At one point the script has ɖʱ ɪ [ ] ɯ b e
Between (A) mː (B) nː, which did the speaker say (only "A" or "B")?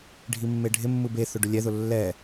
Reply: A